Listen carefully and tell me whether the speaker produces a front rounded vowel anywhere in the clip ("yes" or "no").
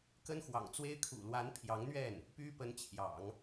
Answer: yes